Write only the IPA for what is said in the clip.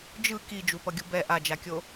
d͡ʒ ɯ k i d͡ʒ u p ʌ ɡʲ u b ɛ ʔ a d͡ʒ a kʲ o

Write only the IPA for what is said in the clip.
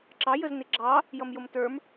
ǁ ɑ j ə z n ɪ ɡ͡ǁ ɑ | j ʌ m j ʊ m t ə˞ m

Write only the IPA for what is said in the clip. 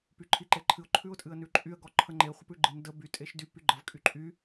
p y ǃʰ i ǃ e ǃʰ ɨ ʊ̯ ǃʰ ʉ ʊ̯ tʼ ɨ ə̯ n ʉ ǃʼ y ə̯ ɡ ɔ ǃʰ ə ŋ͡ǃ e χʷ ə p ʉ ɡ͡ǃ ɨ n d ə b y tʼ e ʃ d y p y ɡ͡ǃ ə v kʼ y ǃʼ y

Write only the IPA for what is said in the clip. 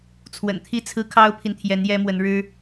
t͡sʰ w ə̰˨˩ n t̪ʰ i˥˩ t͡sʰ ɹ̩˥ kʰ ɑ˥ ʊ̯ pʰ i˨ n t̪ʰ j ɛ˧˥ n j ɛ˥ m w ə˧˥ n ɻ ɻ̩˥

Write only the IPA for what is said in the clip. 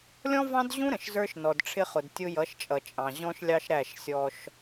lʲ ɔ̃˦ v ɑ̃˦ d ʑ ũ˦ ɾ ə̃˨ ʃ z ə˞˦ ʃ n ɔ˨ d ʈ͡ʂʰ ɪ˦ χ ʊ˨ d tʲ ʊ˦ j ʌ˨˦ ʃ t͡ʃʼ ʌ˨ t͡ʃʼ ɑ̃˨ ʑ ɔ̃˦ ʃ lʲ ɑ˦ ʃ ɾ æ˦˨ ʃ sʲ ɔ˦ ʃ

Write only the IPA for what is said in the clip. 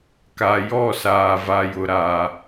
k a˨ j ɔ˦˨ s aː˨ v a˨ j ʊ˨ ɾ a˨

